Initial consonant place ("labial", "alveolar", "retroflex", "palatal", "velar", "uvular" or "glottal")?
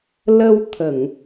alveolar